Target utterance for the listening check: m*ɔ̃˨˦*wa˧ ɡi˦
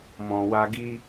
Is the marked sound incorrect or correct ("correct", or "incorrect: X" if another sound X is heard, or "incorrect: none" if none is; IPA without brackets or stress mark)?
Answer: incorrect: ɔ̃˨